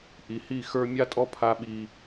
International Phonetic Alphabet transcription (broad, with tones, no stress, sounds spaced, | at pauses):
ʔ i˨ h i˦˨ x ə˞˦ mʲ a˦ tʼ ɔ˦ pʰ a˦ ɓ i˦